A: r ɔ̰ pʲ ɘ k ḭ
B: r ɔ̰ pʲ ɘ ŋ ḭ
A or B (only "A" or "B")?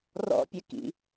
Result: A